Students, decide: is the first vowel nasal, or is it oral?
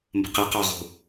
oral